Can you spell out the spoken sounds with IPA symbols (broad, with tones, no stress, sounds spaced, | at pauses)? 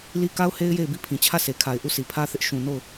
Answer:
l i˦ k a˦ ʊ̯ h e˦ ɪ̯ j e˦˨ ɪ̯ b i˦˨ pʰ ĩ˨ t͡ɕʰ ä˦˨ s e˨ kʰ a˨ ɪ̯ ʔ u˦˨ s i˨ pʰ ä˦ θ ɪ˦ ʔ ʃ ũ˨ n o˦˨ ʊ̯